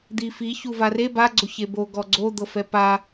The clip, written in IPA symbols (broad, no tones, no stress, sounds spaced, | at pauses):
d̪ i f i ç u v a r e b a ɡ͡ǀ o ç e b o ɡ ɔ ɡ͡ǀ o d̪ ɤ f ɛ p a